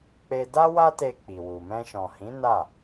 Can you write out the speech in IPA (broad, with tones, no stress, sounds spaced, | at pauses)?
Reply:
k͡p e˧ d a˦ w a˦ t e˧ k͡p i˨ w u˨ m ɛ̃˧ ʃ ɔ̃˨ h ĩ˨˦ n a˦˨